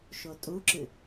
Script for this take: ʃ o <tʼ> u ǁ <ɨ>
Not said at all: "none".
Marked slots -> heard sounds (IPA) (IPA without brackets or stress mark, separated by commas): tʼ, ɨ